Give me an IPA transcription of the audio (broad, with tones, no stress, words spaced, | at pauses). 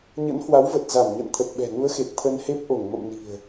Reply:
ɲə̰˧˥nhwa˨˦wvə˨˩t̚ za˧˩mɲə̰˧˨n t̪ʰə˨˩t̚ɓɛ̤˨˩nu˨˦ə̯xe˨˩t̚ t̪ʰə˧nhe˦˥p̚ ʔo˧˩ŋmə̰˧˨mni̤˨˩ə̯